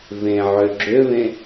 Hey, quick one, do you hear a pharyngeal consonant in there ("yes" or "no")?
yes